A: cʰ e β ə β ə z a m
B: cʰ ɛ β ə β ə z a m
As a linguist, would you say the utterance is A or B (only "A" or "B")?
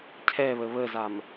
B